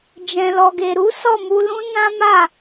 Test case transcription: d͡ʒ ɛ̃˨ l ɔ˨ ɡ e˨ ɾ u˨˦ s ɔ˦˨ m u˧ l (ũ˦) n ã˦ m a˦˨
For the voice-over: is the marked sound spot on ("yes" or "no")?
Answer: yes